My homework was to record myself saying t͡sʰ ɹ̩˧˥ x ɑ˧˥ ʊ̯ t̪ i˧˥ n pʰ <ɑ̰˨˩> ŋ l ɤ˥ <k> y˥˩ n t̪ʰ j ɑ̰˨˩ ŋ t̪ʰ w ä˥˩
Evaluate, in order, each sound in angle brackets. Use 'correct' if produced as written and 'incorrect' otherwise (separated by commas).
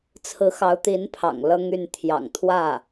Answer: correct, incorrect